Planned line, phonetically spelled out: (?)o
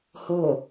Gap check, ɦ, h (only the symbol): h